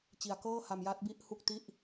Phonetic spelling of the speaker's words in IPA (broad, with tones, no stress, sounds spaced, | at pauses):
t͡ɕ i˨˩ a̯ k ɤː˥˩ h a˧ m j a˦˥ t̚ b i˥˩ ʔ h u˥˩ k̚ t i˥˩ ʔ